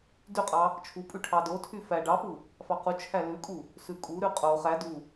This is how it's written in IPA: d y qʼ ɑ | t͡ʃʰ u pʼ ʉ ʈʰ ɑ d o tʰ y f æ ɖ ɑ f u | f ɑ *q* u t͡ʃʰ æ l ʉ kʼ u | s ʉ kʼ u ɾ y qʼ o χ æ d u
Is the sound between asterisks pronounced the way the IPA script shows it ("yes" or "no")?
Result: yes